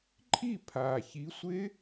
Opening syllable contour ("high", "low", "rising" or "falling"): falling